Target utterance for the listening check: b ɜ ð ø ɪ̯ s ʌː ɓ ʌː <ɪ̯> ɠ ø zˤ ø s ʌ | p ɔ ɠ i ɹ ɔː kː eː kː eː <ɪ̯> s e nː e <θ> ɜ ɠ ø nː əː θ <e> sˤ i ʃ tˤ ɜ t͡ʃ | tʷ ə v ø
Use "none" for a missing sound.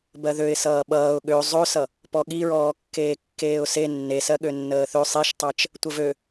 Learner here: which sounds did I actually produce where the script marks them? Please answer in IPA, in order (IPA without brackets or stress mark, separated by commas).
ʊ̯, ʊ̯, s, ø